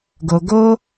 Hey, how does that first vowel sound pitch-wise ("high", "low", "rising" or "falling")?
low